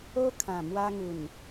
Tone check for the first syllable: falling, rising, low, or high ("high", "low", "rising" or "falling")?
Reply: high